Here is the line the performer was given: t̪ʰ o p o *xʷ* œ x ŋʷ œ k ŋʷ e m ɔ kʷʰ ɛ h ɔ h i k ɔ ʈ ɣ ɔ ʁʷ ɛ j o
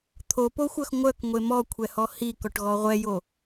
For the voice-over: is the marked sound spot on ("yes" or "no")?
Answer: yes